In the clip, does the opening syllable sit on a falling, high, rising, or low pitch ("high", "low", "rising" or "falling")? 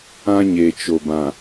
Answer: high